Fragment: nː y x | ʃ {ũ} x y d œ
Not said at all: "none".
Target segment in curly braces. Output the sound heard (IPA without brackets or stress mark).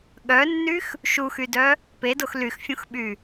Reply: u